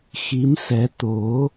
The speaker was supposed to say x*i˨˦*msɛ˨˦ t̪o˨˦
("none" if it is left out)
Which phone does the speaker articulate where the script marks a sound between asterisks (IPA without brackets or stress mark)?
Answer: i˨˦